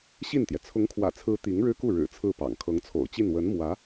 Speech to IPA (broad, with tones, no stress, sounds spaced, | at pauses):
ɕ i˥˩ n t̪ j ɛ˩ t͡sʰ ʊ˧˥ ŋ kʰ w ä̰˨˩ t͡sʰ ɹ̩˧˥ t̪ i˧˥ ŋ ɻ ɻ̩˥ k u˥˩ ɻ ɻ̩˨˩ t͡sʰ ɹ̩˥˩ p ɑ̰˨˩ ŋ kʰ ɤ˧˥ ŋ t͡sʰ o̰˨˩ ʊ̯ t͡ɕ i˥˩ n w ə˧˥ n m w ä˧˥